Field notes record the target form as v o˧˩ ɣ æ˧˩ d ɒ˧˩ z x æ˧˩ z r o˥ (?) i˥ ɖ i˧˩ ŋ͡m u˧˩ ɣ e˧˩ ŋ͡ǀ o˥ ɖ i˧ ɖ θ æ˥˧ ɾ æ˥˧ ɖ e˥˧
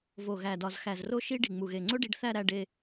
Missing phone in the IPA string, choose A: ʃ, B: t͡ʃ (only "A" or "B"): A